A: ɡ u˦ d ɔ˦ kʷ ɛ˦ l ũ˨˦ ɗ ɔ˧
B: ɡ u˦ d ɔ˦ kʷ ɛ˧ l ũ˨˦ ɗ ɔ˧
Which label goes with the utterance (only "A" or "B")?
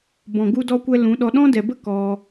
A